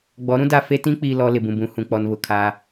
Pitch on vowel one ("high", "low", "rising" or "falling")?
rising